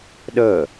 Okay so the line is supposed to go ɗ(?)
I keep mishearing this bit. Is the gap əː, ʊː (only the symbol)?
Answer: əː